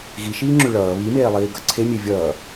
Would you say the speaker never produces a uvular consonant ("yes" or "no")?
yes